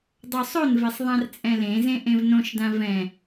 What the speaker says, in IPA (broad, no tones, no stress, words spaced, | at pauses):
dˤosˤonvesˤ ðˤãrt͡sʼɛ̃lẽzẽ ʔẽvnõʃdã vɛ̃